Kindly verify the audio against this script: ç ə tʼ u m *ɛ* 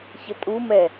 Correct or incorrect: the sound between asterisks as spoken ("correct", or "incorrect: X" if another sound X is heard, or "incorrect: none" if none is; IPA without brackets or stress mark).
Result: correct